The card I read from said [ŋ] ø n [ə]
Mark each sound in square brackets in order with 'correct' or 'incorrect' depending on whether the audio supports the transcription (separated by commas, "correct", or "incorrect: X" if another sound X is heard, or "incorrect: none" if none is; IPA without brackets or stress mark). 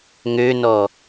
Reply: correct, incorrect: ɔ